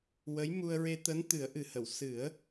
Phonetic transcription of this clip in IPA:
wə˧˥j mu˧ə̯ɹe˧ t̪əː˧˥nt̪ɨ˨˩˦ə̯ʔɨ˨˩hə˨˩˨w sɨ˨˩˦ə̯

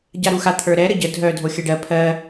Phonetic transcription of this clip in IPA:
ɟaɾuxa t̪ʰə˞ɾɛ ɾəɟə dʱœ dʱoxʲɜɖɜ pʰɜ

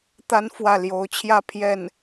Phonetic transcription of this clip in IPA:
t̪a˥n fwä˥˩ ljo˧˥ʊ̯t͡ɕʰjä˥˧ pʰjɛ˥˩n

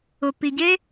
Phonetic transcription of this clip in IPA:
ʊ˨pi˨ɟe˦

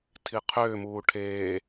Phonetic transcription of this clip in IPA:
tʰiqʰʏːmuː ʈʰeː

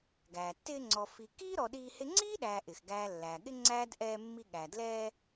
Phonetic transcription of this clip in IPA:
ɡæː˩tːɪː˦ŋ͡ǀɔ˨ fi˨kiː˥ɾɔ˨ ɗiː˦hɪ˥ ŋ͡ǀiː˥ɗæː˨ʔɪ˩xɡæː˨ lːæː˩ɠɪ˥ ŋ͡ǀæː˥dʔɛː˦mːi˦ɠæ˩ dlɛː˦

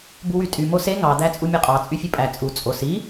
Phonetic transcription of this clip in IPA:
buwytʼy mose ŋɑ d̪æt͡sʼumʲøqʼɑ t͡sʼyfʲɯpʼæ t͡sʼu t͡sʼos i

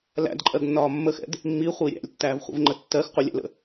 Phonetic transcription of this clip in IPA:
læ̰dǃʼɜɡnːɒː mːəxɛ̰d | mːiχʷi ɾʲæ̰lʲtːæːvχʷḭvŋ͡ǃə tːɜx qʷəlʲæ̰lə̰

